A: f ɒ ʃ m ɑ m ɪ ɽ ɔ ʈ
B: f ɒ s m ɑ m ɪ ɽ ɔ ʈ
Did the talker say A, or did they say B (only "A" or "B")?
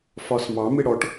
B